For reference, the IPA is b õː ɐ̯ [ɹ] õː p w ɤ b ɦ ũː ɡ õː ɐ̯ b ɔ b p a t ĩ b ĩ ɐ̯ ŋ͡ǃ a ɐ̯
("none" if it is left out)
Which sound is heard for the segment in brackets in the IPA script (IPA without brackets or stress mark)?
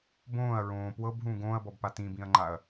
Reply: ɹ